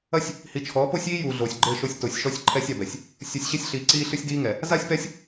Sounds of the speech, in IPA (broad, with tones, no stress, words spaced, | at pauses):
ɐ˦sʲ | hi˨t͡ʃʰɔː˨˦po˦sʲiː˦ juː˨ɮoː˨sʲɡ͡ǃɘː˦˨ʃo˦sʲ to˨sʲʃɔ˦sʲǃʰɛ˦sʲ a˨bɛ˨sʲ | sʲu˨sʲɕe˦sʲɬiː˨ ǀiː˦ɬɨ˦sʲdiː˦ŋɛ˨ | za˦sʲpɛ˦sʲ